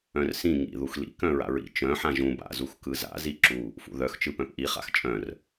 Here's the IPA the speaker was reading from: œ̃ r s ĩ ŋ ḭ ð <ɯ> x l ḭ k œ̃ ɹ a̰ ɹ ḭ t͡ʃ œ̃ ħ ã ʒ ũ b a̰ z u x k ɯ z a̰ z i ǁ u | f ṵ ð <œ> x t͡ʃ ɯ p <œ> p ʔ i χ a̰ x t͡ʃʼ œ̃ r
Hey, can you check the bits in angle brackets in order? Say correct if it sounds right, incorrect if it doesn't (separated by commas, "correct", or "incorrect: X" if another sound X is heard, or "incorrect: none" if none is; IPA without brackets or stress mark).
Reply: incorrect: u, correct, incorrect: œ̃